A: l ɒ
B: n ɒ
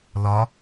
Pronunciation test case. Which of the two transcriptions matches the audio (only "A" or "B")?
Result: A